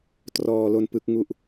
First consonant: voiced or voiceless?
voiceless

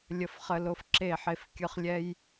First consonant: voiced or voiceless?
voiced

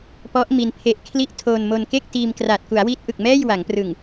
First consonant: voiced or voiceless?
voiceless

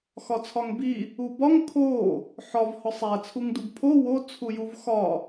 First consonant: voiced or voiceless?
voiceless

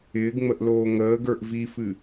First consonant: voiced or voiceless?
voiced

